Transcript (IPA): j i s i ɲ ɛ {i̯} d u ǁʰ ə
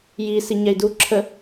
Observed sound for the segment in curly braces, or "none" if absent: i̯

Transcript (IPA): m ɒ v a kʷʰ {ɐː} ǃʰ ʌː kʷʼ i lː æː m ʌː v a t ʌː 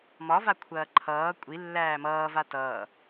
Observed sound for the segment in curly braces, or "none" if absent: ɐː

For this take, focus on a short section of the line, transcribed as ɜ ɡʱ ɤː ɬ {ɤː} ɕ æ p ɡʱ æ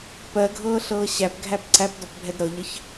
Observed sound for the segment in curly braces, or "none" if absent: ɤː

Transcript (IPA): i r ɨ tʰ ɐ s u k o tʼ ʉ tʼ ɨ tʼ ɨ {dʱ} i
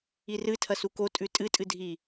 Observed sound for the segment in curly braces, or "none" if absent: dʱ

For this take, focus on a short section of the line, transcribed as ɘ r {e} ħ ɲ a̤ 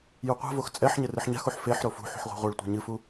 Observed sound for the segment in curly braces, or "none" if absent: ɨ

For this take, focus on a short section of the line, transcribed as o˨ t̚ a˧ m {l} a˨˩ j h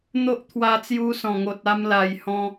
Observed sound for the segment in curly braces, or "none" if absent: l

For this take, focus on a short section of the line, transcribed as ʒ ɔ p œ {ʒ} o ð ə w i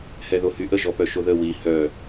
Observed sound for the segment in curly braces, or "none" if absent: ʃ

